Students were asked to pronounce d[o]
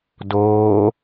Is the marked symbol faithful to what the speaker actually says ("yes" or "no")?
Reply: no